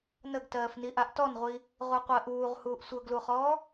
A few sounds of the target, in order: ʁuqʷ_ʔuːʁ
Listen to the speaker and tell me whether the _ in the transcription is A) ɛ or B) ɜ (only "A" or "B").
B